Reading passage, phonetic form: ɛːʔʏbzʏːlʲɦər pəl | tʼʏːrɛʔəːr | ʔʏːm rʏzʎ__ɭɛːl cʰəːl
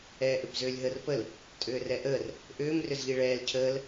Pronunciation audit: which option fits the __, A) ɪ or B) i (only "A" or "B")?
B